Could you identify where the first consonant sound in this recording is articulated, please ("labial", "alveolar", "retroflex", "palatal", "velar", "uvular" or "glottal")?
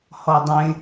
glottal